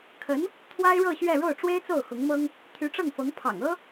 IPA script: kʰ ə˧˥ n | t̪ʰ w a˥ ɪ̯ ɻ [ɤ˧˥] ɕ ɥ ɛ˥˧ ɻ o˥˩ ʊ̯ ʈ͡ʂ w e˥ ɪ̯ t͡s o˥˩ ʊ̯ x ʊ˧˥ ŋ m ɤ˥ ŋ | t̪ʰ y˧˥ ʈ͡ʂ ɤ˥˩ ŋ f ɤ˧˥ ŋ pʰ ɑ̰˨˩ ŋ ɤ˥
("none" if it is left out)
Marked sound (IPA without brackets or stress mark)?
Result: ɤ˥˧